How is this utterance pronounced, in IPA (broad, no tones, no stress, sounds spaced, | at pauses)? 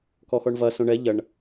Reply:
k ɔ x ɔ ɳ v ɐ s õ ɳ ɛ ʎ ɐ ɳ